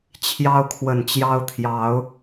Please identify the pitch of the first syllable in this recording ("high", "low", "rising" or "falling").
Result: high